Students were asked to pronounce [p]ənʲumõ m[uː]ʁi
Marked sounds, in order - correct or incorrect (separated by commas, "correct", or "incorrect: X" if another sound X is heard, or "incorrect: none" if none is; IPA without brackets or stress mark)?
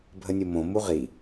incorrect: bʱ, incorrect: u